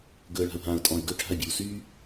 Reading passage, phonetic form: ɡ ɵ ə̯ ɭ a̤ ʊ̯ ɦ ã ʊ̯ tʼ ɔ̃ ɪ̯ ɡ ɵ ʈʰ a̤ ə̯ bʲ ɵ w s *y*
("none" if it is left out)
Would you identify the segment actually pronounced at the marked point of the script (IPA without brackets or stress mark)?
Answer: y